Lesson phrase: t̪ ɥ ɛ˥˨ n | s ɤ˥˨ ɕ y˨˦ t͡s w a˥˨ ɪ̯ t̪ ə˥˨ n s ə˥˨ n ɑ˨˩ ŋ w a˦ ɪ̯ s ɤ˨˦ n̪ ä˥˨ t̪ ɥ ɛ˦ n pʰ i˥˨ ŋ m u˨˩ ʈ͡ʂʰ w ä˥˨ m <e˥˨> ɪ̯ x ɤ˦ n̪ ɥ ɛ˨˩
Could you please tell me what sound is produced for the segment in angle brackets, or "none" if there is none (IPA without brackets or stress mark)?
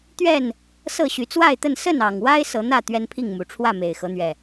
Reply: e˨˩